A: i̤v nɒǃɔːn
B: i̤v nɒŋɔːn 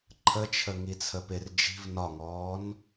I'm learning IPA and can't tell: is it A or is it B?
B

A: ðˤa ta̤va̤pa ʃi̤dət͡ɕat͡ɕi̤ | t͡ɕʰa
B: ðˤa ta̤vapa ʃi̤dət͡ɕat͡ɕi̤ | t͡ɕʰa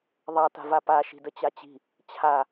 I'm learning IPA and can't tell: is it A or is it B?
B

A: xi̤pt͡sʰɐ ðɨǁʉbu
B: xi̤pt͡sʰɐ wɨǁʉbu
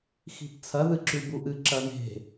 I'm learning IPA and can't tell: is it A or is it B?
A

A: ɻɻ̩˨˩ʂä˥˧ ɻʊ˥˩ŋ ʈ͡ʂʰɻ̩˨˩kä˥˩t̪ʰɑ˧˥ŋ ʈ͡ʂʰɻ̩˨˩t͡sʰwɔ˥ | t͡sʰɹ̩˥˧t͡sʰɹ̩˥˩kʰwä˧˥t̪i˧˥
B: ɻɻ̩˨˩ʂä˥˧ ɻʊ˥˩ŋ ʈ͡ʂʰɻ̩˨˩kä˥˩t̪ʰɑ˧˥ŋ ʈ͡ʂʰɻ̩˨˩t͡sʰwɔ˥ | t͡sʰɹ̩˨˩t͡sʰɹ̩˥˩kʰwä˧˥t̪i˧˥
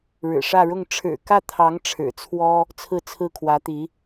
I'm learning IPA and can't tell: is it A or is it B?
A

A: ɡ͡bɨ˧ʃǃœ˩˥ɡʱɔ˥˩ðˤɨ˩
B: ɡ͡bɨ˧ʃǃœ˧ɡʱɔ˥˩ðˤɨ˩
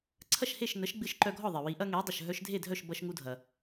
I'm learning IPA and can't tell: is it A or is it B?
B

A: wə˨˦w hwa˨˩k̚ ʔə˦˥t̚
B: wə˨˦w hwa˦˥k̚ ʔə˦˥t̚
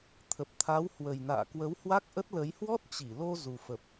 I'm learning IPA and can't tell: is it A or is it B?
B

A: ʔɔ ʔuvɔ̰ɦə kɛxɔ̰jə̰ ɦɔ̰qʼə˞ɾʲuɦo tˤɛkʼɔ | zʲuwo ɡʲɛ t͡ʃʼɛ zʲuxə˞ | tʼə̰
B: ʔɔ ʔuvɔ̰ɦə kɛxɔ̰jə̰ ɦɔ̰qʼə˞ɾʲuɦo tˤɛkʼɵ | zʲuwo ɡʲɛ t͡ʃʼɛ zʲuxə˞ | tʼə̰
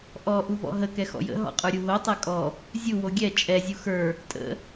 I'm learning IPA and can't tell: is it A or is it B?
A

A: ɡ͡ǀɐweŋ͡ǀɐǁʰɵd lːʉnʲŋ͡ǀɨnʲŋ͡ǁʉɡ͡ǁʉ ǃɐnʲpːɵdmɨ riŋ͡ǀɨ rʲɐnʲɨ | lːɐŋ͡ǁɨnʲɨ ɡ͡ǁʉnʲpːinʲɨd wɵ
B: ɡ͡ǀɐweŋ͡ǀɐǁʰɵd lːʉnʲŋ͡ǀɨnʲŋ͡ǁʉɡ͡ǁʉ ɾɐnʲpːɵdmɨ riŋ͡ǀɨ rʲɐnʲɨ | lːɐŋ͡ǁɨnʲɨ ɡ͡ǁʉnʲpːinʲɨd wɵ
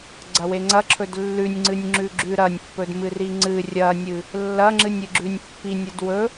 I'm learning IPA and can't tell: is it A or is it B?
B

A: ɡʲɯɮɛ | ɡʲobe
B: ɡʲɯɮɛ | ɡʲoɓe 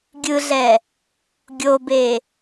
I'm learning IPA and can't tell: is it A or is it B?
A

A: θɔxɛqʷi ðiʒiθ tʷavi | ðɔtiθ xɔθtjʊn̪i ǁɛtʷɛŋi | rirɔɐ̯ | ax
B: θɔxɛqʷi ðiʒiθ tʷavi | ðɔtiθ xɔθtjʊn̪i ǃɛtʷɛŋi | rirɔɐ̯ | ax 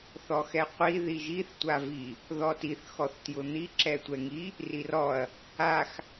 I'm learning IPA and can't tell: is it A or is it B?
A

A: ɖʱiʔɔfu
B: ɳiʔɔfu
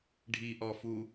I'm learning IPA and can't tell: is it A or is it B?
A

